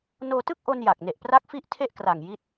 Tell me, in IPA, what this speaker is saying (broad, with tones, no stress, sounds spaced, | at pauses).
n oː˧ t ɯ˥˩ k̚ ʔ o˧ n j a˨˩ k̚ n e˨˩ ʔ p r a˦˥ k̚ f i˦˥ ʔ tʰ e˥˩ ʔ k r a˨˩ ŋ j i˥˩ t̚